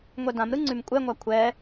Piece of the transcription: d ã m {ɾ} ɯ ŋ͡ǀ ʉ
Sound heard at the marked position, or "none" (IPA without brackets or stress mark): ɾ